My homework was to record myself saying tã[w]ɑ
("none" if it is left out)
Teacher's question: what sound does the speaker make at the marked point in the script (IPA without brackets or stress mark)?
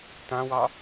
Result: w